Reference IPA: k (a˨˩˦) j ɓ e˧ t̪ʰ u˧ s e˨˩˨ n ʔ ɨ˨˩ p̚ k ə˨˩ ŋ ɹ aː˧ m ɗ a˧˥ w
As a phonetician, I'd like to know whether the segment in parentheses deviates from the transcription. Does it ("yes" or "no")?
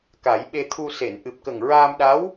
no